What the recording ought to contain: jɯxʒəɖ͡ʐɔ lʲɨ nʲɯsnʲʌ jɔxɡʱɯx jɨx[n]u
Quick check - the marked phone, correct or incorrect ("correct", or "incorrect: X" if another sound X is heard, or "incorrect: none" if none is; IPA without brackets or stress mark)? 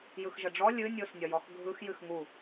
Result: incorrect: ŋ